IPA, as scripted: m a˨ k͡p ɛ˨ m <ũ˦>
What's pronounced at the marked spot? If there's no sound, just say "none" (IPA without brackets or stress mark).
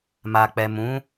ũ˦